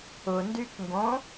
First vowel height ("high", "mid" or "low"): high